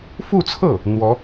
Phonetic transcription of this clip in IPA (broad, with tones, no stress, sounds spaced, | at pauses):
f u˥˧ t͡sʰ ɤ˥˩ | n̪ w ɔ˧˥